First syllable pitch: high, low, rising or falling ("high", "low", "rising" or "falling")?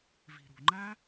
low